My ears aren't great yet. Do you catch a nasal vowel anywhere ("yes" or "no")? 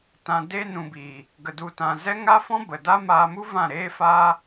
yes